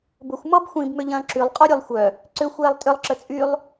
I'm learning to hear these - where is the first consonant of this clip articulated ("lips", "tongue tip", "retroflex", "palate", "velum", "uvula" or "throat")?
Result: lips